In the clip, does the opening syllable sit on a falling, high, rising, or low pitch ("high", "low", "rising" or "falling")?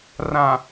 low